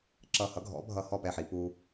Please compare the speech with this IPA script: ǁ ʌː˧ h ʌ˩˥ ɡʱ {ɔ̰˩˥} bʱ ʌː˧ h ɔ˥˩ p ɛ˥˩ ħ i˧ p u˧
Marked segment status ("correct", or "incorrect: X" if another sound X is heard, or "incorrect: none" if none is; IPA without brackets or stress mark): correct